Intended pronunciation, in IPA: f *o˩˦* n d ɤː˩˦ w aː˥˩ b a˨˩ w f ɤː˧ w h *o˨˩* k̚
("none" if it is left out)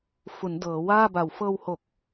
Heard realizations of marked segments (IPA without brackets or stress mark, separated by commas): u˩˦, o˨˩